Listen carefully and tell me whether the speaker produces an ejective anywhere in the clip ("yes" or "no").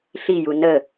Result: no